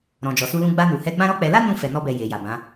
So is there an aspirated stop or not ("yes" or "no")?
no